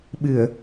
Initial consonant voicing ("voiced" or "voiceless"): voiced